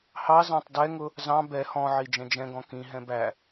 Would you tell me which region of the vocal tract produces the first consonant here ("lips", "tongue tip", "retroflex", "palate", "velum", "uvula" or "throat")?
throat